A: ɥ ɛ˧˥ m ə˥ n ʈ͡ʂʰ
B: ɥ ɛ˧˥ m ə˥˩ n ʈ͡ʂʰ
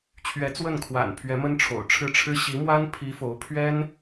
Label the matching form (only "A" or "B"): A